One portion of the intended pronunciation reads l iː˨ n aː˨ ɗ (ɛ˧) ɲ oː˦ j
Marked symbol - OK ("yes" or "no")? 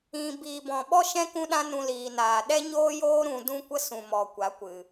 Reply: no